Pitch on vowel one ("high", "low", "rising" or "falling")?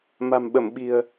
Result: low